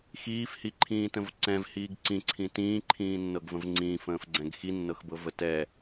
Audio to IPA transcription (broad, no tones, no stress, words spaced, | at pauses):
xiːfhiǃʰĩːtə̃v ǀɛ̃vhiːɡ ǀĩǀʰĩ tĩːǃʰĩːnːɤɡvə̃v ŋ͡ǀĩːfə̃ːfɡ͡ǀɛ̃ɡ xinːɤxbɤvə tɛ